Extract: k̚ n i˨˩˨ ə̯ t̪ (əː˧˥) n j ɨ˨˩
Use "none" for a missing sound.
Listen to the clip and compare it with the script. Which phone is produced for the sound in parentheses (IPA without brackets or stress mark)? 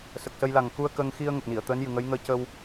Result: əː˧˥